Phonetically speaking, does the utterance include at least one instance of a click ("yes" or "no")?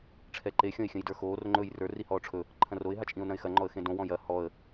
yes